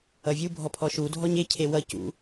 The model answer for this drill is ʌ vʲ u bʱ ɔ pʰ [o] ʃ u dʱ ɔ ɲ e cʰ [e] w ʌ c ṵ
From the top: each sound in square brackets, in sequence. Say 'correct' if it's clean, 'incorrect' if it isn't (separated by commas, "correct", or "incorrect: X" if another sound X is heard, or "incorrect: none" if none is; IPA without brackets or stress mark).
incorrect: ɔ, correct